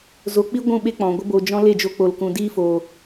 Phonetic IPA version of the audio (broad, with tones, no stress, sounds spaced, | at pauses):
z o˧ k͡p i˦ ɡʷ ũ˦˨ ɓ e˦ k͡p ɔ̃˨ ɡʷ ə˧ b o˨ d͡ʒ ɔ̃˧ l e˦˨ d͡ʒ o˧ k͡p o˨ l k ũ˨ d iː˧ f oː˨